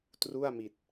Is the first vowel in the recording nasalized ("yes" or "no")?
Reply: no